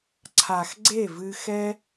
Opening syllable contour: low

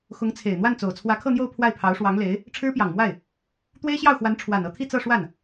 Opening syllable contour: rising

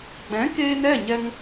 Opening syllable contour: rising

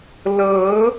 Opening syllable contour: rising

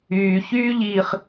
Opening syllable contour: low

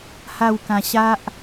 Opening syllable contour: falling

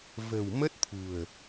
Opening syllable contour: low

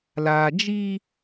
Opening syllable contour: low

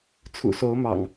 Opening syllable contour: low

